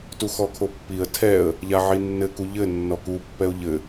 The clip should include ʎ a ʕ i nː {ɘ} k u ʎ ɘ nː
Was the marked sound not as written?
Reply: no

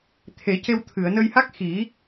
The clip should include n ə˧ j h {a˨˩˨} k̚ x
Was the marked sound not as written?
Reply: yes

